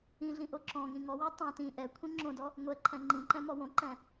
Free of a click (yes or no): no